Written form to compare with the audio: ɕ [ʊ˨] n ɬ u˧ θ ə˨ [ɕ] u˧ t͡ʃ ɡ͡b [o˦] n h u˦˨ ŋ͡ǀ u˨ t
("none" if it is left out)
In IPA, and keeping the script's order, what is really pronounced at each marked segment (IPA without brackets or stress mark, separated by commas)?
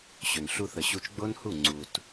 ɵ˨, ɕ, o˦